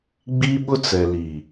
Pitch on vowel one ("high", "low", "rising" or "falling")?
high